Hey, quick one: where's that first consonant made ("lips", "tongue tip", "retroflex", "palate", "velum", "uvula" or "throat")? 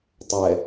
tongue tip